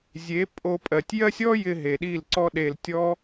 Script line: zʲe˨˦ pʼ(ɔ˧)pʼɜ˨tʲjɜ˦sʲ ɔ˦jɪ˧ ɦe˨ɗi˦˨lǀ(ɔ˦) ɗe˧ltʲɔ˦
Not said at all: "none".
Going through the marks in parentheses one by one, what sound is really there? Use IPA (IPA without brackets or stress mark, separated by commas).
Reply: o˧, ɔ˦